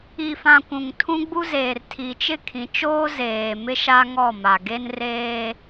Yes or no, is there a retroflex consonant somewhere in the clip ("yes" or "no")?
no